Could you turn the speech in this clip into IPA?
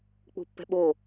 k͡p ṳ pː ɛ̤ ɓ o

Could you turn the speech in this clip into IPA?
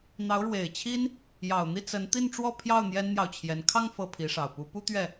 n̪ ɑ˧˥ ʊ̯ ɻ w e˨˩ ɪ̯ t͡ɕʰ i˥ n | j ɑ˨˩ ʊ̯ n̪ i˥˩ t͡s ə˧˥ n t̪ i˥˧ n ʈ͡ʂ w ɔ˥˧ pʰ j ɑ˥˩ ʊ̯ n̪ j ɛ˥ n n̪ j ɑ˨ ʊ̯ t͡ɕʰ j ɛ˧˥ n kʰ ɑ˥˧ ŋ f ɤ˥˩ pʰ i˧˥ ʂ ɑ˨˩ ʊ̯ p u˧˥ p u˥ t̪ ɥ ɛ˥˩

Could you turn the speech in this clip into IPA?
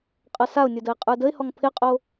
qʼ ʌ s a ʊ̯ nʲ ə˞ d ə ɪ̯ qʼ ə˞ d ə ɪ̯ h ɔ ŋ pʰ ɪ qʼ o

